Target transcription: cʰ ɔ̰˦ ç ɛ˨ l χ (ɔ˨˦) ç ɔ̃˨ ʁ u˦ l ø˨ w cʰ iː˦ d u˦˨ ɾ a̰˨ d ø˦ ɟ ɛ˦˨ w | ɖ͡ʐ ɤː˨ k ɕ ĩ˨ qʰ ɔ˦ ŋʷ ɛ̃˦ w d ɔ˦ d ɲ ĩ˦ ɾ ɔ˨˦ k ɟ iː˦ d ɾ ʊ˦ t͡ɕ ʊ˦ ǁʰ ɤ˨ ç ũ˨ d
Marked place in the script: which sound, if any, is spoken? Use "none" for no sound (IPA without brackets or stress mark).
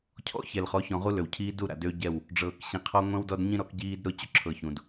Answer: ɔ˨˦